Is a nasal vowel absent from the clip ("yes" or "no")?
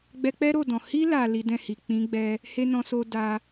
no